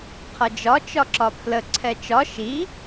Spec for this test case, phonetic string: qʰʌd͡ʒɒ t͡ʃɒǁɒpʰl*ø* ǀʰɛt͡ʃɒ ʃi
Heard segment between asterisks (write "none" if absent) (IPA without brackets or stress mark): ə